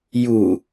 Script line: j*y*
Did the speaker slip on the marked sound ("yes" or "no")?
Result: yes